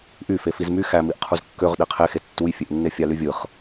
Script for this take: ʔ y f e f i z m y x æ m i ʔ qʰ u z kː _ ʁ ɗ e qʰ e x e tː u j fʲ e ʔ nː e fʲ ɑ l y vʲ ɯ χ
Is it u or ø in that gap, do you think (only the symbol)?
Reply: ø